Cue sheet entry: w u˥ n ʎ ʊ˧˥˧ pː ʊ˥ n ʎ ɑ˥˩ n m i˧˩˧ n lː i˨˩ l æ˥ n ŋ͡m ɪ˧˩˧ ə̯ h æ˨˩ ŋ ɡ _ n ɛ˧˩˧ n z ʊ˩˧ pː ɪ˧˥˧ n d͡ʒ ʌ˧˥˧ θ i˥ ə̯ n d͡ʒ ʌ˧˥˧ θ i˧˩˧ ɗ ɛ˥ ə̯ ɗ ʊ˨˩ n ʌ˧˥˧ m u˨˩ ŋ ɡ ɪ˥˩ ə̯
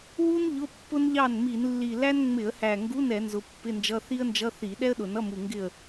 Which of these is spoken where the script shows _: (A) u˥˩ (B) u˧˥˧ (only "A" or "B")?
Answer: B